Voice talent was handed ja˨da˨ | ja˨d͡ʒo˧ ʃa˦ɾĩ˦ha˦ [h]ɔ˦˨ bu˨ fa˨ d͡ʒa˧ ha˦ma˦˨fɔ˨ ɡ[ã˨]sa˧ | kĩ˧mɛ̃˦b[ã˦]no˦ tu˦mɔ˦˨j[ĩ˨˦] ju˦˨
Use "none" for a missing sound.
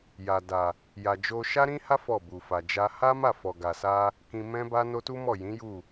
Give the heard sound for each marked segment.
f, a˨, a˦, ĩ˨˦

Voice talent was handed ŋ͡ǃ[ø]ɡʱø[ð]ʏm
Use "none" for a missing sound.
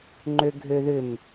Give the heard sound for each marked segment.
ø, ð

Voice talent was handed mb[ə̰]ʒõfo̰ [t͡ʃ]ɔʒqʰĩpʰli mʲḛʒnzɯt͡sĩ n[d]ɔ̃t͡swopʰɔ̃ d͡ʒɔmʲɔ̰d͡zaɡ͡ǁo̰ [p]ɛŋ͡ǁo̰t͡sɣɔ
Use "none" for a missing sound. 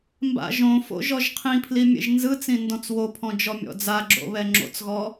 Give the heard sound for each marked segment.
a̰, ʒ, d, β

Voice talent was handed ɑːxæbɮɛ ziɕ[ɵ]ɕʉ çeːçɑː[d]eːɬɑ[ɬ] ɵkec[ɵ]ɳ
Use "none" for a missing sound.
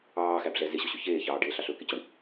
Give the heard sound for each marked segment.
o, ɖ, ɬ, o

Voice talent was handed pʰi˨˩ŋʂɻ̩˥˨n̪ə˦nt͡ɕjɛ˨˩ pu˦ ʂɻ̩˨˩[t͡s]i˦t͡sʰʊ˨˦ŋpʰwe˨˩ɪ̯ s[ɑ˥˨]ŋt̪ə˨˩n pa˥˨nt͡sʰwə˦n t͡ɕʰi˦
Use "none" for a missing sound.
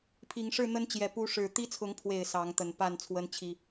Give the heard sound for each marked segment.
t̪, ɑ˨˦

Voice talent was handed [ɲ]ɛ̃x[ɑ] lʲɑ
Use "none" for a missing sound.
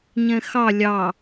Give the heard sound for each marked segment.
ɲ, ɑ

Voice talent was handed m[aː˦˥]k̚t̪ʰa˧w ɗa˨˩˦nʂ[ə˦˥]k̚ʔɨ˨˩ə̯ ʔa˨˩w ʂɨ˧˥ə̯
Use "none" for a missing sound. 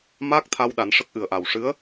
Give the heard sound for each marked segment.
aː˦˥, ə˦˥

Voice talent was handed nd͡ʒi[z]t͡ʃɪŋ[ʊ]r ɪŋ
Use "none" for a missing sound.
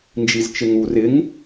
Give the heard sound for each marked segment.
z, u

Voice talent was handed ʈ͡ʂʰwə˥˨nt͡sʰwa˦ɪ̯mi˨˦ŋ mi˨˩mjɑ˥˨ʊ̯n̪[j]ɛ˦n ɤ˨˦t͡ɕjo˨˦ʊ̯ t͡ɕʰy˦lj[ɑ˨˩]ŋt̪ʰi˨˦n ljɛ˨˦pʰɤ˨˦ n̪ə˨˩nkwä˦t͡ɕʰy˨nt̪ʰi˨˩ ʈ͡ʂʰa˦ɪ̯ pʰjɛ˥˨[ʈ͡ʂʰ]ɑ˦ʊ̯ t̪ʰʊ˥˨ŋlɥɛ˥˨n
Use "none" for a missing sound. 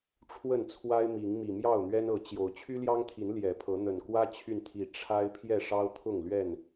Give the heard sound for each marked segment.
ɥ, ɑ˦, ʂ

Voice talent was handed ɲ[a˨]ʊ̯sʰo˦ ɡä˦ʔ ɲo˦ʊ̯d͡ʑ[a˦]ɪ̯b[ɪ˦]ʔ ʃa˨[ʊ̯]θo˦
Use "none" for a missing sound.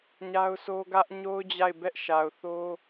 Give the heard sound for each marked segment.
a˦, a˦˨, ɛ˦, ʊ̯

